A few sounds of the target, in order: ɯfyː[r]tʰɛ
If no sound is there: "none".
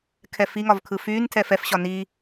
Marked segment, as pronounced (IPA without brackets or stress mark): n